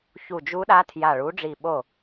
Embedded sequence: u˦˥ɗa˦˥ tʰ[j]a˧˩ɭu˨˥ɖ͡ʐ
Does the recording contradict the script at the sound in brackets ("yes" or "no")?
no